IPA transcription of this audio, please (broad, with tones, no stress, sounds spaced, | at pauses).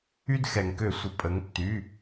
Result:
y˦ d x ɛ˩ ŋ k ø˧˩˧ sʷ ə˩˧ pʼ ə˩˧ ŋ tː y˩˧˩